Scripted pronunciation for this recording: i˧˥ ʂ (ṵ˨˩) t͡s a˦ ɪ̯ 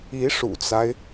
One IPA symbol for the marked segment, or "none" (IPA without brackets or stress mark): ṵ˨˩